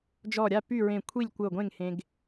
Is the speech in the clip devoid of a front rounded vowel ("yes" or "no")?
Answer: no